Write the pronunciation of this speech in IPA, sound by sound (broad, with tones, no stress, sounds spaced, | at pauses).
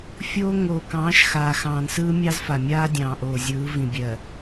fʲ oː˦ ŋ oː˨ k ɑ̃ː˨˦ ʃ x aː˨ x ɑ̃ː˨ n s ɯː˦ mʲ ɑ˦ z f a˨ mʲ aː˦ dʲ ɑ̃ː˨ ʔ oː˨ zʲ ɯː˨˦ v ĩ˨ bʲ ɜ˨